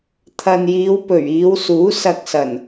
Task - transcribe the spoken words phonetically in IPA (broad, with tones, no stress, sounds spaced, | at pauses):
t̪ʰ ɐ˨ n j iː˨˧ w p ɵ˨˩ ɥ iː˨˧ w s uː˨˥ s ɐ˧ k̚ s ɐ˨˩ n